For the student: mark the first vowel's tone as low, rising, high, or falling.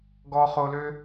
low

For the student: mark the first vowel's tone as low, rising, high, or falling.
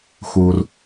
low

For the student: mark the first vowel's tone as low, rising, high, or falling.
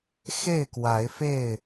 falling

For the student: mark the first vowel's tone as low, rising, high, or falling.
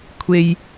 high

